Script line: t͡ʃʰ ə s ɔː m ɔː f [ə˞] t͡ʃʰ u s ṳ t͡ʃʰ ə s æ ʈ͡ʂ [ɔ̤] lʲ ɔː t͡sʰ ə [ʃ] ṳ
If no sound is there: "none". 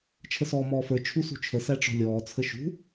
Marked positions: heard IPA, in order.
ə˞, ɔ̤, ʃ

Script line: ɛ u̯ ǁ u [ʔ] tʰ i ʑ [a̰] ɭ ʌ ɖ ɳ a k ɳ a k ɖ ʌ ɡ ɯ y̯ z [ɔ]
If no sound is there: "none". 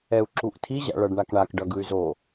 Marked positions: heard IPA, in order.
ʔ, a̰, o

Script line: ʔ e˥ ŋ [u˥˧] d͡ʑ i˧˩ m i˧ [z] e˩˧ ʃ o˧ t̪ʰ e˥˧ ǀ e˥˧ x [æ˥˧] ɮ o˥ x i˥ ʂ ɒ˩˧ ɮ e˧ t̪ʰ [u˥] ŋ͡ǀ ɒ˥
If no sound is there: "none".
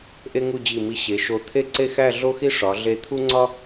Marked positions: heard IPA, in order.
u˥˧, ɕ, æ˥˧, u˥

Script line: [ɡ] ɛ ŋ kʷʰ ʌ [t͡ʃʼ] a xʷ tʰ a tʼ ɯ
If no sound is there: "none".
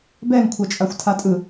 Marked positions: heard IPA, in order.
b, t͡ʃʼ

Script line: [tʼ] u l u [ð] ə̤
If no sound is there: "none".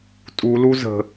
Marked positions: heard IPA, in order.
tʼ, z

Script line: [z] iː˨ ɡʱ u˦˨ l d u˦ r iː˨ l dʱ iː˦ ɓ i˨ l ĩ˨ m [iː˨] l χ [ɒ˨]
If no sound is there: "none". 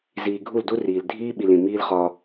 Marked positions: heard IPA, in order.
z, iː˦, ɒ˦

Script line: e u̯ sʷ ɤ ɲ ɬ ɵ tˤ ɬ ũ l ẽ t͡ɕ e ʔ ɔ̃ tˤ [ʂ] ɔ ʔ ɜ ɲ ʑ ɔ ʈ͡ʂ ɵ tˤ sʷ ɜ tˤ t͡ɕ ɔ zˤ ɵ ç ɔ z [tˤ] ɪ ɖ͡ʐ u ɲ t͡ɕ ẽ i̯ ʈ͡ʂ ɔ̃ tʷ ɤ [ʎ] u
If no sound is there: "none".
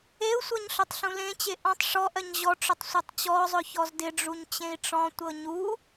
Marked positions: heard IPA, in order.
ʂ, d, ɲ

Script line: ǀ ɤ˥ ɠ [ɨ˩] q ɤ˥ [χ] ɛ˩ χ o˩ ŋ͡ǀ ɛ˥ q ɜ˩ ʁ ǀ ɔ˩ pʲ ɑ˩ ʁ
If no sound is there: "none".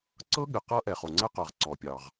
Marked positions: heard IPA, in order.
ɨ˩, ʔ

